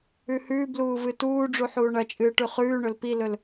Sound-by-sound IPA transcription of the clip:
ʉ h ʉː b l uː v ɨ t uː ɖ͡ʐ u ħ uː ɳ ɐ t͡ʃʼ ɨː ʈ ʉ χ ʉː ɳ ɵ l p i l ɵ l

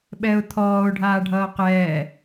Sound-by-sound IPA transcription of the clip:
ɓ ɛ ʊ̯ t̪ʰ ɔː ʊ̯ ɖʱ aː ɖʱ ʌː q ɛː

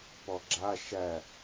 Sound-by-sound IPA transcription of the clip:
p ɔ ɡ͡ǁ a ʃ æ

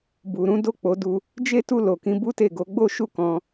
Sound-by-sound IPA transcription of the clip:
b u˨ ɾ ũ˨˦ d o˦˨ k͡p o˨˦ d u˧ | d͡ʒ e˦ t u˦˨ l o˨ k ĩ˨˦ b u˦ t e˦˨ ɡ o˨˦ ɡ͡b o˦ ʃ u˦˨ k ɔ̃˧

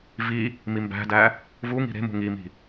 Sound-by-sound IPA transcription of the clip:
v i | m i m b æ̤ d æ | v u ŋ i̤ ɾ e̤ m ṳ ŋ i m i̤

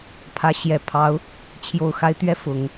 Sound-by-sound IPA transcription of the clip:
pʰ ä˧˥ ɕ j ɛ˨˩ pʰ ɑ˧˥ ʊ̯ | t͡ɕʰ j o˨˩ ʊ̯ x a˧˥ ɪ̯ t̪ ɥ ɛ˥˩ f ʊ˨˩˦ ŋ

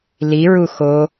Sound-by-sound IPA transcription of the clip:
l i ɹ u x o

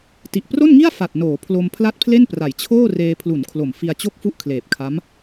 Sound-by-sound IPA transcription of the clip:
t i˨˩ ʔ p r o˥˩ n ŋ i˥˩ a̯ f a˨˩ t̚ n oː˩˦ pʰ l o˧ m pʰ l a˥˩ t̚ pʰ l e˥˩ n p r a˩˦ j t͡ɕʰ oː˥˩ r eː˧ pʰ l u˩˦ n kʰ l o˨˩ m f i˧ a̯ t͡ɕ o˥˩ k̚ f u˥˩ ʔ kʰ l eː˨˩ p̚ kʰ a˦˥ m

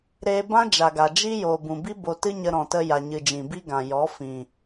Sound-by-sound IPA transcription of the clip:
ɾ eː˧ b ã˦ d͡ʒ a˨ ɡ a˨ d͡ʒ i˦ j oː˨ b ũ˨ b i˦ b o˧ t ɨ˦ ɲ ə˧ ɾ ɔ̃˨ t ə˧ j a˨ ɲ ɨ˨ d͡ʒ ĩ˨ b i˦ ɡ ã˨ j ɔ˨˦ f ĩ˨

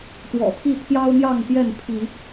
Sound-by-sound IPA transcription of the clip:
t̪ w ɔ̰˨˩ t̪ʰ i˥˨ t̪ʰ j ɑ˦ ʊ̯ n̪ j ɑ˥˨ ŋ t̪ j ɛ˥˨ n pʰ i˨˦

